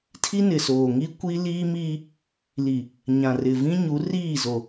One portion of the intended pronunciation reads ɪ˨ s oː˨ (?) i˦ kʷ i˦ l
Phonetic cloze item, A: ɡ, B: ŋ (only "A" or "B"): B